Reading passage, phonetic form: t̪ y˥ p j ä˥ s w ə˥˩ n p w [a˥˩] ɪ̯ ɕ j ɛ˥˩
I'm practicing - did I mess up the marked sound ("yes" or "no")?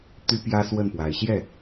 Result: yes